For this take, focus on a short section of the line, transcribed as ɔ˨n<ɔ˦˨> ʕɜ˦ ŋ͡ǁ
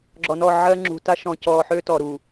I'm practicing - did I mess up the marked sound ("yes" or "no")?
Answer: no